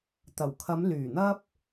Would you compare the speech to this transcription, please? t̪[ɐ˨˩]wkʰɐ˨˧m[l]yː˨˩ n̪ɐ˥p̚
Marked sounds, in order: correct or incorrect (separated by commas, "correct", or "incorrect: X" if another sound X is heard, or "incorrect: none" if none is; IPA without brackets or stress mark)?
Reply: correct, correct